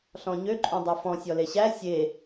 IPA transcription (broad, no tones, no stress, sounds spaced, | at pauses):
ɬ ɔ̃ ɲ ø ǃʼ ũ dˤ ø f ɔ̃ sʲ ɔ l e ɕ æ sʲ e